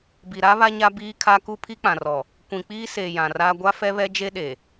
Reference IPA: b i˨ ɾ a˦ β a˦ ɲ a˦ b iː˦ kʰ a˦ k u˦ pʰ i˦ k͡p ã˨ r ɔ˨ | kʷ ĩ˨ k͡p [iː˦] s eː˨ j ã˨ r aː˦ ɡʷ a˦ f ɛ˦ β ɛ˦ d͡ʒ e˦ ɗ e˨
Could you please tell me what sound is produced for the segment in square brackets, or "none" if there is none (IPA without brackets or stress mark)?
iː˦